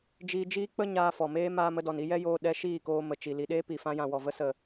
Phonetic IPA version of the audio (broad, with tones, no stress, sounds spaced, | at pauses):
d͡ʒ iː˧ d͡ʒ iː˦ k͡p ə˦ ɲ aː˧ f ɔ˨ m eː˦ m aː˧ m ə˧ d ɔ˨ n i˧ j ɛ˦ j oː˧ ɗ ɛ˧ ʃ iː˦˨ k oː˧ m ə˨ t͡ʃ i˨ l i˨ ɗ eː˦ p i˨ f ã˧ j ã˨ w ɔ˨ v ə˧ s ə˨